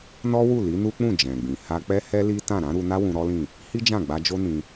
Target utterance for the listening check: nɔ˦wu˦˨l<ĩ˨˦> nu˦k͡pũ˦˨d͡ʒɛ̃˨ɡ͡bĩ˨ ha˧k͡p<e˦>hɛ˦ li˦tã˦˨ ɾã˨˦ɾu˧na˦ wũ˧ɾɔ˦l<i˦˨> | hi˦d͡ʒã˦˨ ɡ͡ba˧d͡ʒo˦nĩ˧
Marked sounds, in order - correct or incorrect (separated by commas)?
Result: incorrect, incorrect, incorrect